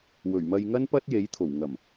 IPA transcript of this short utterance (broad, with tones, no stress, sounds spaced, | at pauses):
w ɵ˨˩ ɥ m ɐ˧ j ŋ ɐ˥ n p ɐ˥ t̚ j e˨˥ j t̪ʰ o˨˩ w ŋ ɐ˨˩ m